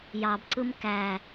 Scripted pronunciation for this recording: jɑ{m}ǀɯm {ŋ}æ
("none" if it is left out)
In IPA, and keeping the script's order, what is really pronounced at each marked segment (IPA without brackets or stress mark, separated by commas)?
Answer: b, k